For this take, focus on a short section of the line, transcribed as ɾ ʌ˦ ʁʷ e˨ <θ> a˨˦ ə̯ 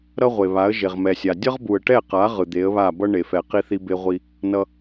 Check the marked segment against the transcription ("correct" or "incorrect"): incorrect